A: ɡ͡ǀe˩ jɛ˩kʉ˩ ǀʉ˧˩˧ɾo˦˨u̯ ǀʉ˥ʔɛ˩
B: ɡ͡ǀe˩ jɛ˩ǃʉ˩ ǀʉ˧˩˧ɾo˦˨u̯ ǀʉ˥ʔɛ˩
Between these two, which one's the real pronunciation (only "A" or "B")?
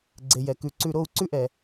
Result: A